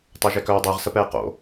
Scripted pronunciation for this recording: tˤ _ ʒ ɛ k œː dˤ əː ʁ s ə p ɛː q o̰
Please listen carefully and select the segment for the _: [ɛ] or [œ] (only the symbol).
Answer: œ